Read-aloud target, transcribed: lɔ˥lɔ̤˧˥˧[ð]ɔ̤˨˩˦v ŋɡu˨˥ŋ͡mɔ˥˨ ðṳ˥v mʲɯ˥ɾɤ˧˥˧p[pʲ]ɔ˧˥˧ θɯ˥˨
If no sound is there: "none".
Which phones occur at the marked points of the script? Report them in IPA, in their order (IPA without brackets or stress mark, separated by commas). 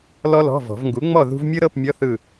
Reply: v, mʲ